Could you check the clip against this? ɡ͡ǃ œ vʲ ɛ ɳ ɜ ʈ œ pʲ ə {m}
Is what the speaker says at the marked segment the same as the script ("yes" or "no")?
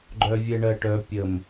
yes